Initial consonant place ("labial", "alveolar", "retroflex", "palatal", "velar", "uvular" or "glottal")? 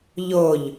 palatal